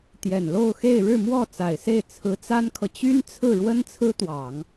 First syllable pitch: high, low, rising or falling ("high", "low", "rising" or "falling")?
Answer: low